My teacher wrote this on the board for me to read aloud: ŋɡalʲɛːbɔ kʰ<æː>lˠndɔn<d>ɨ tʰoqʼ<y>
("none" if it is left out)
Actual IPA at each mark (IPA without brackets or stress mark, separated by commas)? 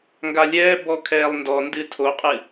ɛː, d, ɨ